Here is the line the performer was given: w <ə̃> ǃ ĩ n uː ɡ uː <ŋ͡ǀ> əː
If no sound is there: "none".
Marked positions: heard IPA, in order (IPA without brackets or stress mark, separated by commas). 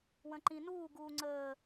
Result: ə̃, ŋ͡ǀ